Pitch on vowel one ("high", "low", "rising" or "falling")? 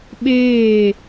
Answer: falling